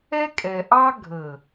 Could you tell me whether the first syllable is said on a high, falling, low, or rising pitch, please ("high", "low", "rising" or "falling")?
high